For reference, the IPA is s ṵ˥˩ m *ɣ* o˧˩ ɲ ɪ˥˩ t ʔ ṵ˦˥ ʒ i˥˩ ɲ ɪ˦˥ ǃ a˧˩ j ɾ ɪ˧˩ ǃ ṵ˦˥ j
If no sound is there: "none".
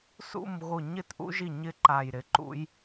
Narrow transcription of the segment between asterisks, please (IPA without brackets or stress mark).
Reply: ɣ